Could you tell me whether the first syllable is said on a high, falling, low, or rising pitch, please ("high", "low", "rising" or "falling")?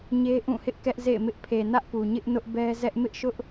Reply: high